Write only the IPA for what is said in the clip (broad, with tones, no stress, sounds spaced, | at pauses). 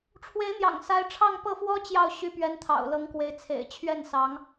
ʈ͡ʂʰ w e˧˥ ɪ̯ n̪ j ɑ̰˨˩ ŋ s a˧˥ ɪ̯ ʈ͡ʂʰ ɑ˥˧ ŋ p ɤ˥˩ f w ɔ˥ t͡ɕ j ɑ˥˩ ʊ̯ ɕ y˧˥ p ɥ ɛ˧˥ n t̪ʰ ɑ̰˨˩ ʊ̯ l ɤ˧˥ ŋ k w e˧˥ ɪ̯ t͡sʰ ḛ˨˩ ɪ̯ t͡ɕʰ ɥ ɛ˥˩ n s ɑ˧˥ ŋ